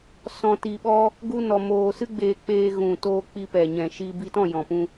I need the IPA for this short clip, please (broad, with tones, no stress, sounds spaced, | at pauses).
s ɔ̃˧ t i˧ ɓ ɔ˦ | ɡ u˦ n ɔ˧ m oː˧ s ɨ˦ ɡ͡b eː˧ k͡p eː˧ ɣ ũ˨ t oː˧ k͡p i˧ p ɛ˨ ɲ ɛ̃˨ ʃ i˧ b i˧ t ɔ̃˦˨ j ɔ̃˨ p ũ˧